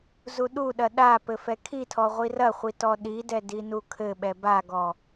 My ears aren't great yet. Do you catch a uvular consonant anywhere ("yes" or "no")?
yes